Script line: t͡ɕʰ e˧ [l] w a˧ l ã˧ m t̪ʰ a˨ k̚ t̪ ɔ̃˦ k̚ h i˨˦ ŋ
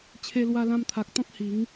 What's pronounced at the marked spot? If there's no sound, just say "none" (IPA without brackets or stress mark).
l